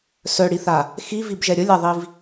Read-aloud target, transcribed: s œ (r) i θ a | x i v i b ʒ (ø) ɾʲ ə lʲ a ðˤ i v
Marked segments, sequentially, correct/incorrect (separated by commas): incorrect, incorrect